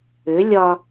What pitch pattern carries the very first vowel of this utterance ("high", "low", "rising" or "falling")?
rising